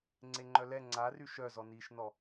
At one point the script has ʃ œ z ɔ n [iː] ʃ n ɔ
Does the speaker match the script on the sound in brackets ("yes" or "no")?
yes